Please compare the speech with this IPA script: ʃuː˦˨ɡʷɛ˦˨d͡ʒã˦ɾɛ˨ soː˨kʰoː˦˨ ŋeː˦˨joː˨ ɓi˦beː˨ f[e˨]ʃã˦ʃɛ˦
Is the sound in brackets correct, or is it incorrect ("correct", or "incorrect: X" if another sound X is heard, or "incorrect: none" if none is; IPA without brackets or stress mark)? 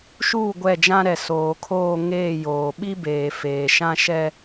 incorrect: eː˨